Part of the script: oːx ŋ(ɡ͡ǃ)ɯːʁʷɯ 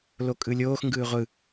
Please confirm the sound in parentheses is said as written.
no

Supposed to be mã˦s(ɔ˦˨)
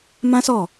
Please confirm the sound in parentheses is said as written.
yes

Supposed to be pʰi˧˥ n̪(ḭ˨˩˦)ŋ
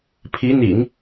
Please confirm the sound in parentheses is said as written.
yes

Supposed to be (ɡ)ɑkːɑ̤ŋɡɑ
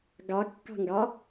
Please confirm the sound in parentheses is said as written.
yes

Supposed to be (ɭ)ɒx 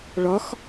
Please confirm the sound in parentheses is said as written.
yes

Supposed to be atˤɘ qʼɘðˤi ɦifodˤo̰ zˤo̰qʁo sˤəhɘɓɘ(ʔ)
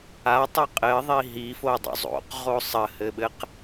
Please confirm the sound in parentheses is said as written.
no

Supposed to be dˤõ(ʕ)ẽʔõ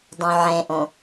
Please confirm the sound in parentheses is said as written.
yes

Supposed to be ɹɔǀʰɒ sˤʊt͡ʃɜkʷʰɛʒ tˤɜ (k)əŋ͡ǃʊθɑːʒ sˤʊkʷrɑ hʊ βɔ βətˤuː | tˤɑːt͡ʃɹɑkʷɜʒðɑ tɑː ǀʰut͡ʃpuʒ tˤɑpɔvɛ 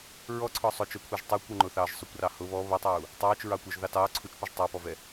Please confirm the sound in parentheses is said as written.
no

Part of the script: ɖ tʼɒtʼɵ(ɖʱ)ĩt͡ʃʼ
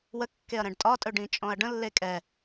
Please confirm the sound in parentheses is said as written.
no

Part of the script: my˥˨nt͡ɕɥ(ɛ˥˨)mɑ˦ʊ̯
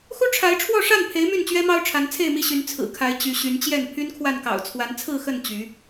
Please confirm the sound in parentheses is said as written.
no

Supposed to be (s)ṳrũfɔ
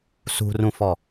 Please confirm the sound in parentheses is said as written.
yes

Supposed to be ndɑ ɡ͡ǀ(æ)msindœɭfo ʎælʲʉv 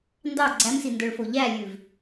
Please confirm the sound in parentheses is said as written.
yes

